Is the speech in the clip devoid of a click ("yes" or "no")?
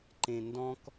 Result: no